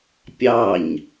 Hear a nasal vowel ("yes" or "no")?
no